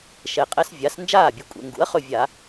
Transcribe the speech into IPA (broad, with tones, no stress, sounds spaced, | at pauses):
ʃ ɛ˨˩ qʼ ɛ˦ s vʲ a˩˥ s n d͡ʒ aː˥˩ bʲ ʊ˩˥ kʷʼ ɛ̰˩˧ ŋ ɡ ṵ˩˥ ɐ̯ χ ɵ˥˩ vʲ a˧˩˧